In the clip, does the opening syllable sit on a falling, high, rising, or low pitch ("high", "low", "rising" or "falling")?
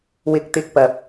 rising